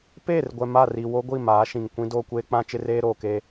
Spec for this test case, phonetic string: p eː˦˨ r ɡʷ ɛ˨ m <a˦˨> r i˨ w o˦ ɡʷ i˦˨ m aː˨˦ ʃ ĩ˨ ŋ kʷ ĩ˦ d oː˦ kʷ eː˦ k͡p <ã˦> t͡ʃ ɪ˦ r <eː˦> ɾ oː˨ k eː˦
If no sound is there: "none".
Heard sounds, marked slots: a˦˨, ã˦, eː˦

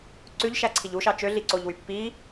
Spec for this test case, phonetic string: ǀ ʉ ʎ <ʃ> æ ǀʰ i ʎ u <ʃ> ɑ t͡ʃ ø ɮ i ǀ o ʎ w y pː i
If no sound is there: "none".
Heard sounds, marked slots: ʃ, ʃ

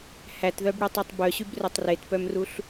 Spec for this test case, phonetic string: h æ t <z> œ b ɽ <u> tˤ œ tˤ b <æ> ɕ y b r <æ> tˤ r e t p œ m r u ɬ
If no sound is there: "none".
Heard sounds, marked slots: ð, y, œ, œ

